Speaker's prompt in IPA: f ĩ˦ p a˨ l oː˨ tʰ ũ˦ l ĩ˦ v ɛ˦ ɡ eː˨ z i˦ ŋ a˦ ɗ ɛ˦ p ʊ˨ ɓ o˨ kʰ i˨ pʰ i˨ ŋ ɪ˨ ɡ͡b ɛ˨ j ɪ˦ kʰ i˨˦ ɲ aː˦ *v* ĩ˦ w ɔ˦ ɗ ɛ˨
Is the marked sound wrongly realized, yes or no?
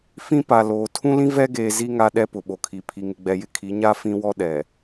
yes